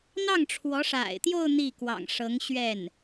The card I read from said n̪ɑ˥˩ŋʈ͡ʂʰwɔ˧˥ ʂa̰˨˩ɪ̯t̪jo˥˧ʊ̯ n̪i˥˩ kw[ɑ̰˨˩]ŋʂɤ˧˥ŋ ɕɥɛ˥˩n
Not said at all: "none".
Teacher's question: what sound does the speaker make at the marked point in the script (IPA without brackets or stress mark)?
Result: ɑ̰˨˩